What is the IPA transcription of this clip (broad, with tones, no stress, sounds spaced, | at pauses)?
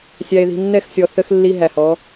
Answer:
sʲ æ˨ e̯ ð i̤˨ nː ɛ˦˨ x sʲ ɔ˨ θ ə˦ x lː i˦ ɦ æ˨ h ɔ˨˦